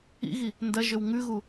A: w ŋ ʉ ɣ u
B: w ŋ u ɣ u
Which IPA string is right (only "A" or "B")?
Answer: A